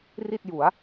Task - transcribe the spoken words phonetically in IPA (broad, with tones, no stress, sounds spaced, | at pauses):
r i˥˩ t̚ j u˩˦ a̯